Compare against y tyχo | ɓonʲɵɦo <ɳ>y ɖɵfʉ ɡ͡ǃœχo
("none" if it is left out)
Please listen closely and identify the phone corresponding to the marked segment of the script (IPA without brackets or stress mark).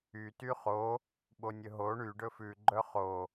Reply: ɳ